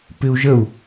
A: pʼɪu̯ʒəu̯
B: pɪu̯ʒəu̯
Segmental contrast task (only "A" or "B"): B